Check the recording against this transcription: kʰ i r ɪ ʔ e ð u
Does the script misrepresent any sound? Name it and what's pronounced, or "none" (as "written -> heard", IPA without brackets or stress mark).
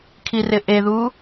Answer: none